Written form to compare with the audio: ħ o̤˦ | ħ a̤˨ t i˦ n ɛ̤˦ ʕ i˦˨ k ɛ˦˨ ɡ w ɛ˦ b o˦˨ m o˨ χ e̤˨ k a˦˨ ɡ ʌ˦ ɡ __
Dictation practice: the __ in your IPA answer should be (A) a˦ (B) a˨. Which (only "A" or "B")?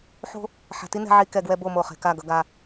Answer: A